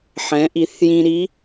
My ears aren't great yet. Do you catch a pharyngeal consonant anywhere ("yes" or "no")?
yes